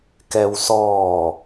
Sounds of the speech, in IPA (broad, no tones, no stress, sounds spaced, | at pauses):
k ɛ w s ɔː